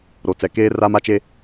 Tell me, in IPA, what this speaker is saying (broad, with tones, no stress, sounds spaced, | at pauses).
ɾ o˨ t͡s ɛ˨ k eː˦ r a˦ m a˦ t͡ʃ e˦